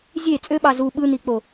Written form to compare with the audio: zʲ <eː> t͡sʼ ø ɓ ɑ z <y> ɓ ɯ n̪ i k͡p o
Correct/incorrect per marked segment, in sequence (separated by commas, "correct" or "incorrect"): incorrect, incorrect